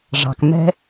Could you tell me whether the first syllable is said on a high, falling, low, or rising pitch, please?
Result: low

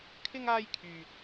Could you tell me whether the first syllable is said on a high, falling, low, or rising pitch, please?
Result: high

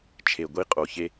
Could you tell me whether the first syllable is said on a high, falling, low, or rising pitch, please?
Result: low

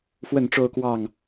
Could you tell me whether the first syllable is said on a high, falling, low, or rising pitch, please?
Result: falling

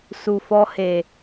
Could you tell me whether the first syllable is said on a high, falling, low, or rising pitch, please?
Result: low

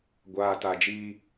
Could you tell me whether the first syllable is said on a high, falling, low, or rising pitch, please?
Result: low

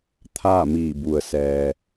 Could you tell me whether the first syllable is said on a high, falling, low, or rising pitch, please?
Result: falling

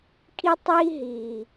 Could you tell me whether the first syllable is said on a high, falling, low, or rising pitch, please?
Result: high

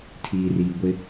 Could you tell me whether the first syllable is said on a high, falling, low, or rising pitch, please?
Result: low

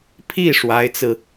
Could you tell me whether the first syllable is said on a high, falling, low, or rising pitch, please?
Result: falling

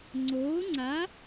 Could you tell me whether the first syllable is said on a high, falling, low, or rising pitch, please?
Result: rising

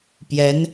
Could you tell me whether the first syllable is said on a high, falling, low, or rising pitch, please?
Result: rising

